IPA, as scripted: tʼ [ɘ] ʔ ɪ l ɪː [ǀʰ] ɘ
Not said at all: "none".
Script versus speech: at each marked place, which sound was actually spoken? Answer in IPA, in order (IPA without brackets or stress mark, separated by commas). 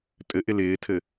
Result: ɘ, tʰ